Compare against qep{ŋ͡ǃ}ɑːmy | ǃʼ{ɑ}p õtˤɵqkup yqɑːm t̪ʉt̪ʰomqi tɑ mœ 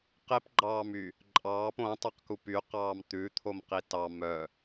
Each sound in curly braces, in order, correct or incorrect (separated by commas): incorrect, incorrect